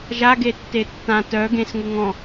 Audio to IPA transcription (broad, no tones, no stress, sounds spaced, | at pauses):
ʒ a ɡ e tː e tː ã t œ ɡ ẽ s ŋ u ŋ ɔ̃